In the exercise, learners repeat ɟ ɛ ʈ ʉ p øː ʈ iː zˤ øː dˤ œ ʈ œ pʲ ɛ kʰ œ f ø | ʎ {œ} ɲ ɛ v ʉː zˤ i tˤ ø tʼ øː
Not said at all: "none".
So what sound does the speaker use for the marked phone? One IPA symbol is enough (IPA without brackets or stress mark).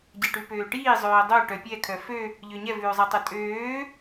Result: ø